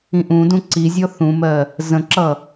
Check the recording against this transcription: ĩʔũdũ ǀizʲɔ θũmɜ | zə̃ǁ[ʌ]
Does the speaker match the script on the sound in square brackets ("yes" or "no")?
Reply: yes